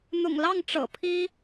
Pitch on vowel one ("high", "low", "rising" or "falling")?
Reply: low